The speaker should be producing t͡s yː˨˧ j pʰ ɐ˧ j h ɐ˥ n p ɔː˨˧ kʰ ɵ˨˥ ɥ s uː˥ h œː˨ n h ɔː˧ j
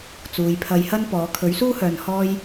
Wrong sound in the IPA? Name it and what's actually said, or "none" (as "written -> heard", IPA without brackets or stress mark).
yː˨˧ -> uː˨˧